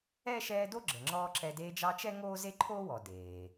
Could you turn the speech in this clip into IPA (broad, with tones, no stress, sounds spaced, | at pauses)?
ɛ˥ ʃ ɛː˦ d o˥ ɡ͡ǁ ə˨ ŋ͡ǁ ɔː˥ ǁ ɛ˦ d eː˦ d͡ʒ ɑ˦ t͡ʃ ɛ˥ ŋ oː˥ z e˥ ǃʰ oː˥ w ɔ˨ d eː˩